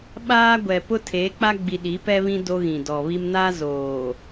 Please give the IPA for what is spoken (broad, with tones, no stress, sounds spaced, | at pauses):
ɓ aː˦ ɡʷ ɛ˨ p ʊ˦ tʰ eː˨˦ k͡p a˦ ɡ͡b i˨ ɗ i˨˦ p ɛ˦ β ĩ˦ d o˦ ɣ ĩ˨ d ɔ˨ β i˦ m n a˦ z oː˨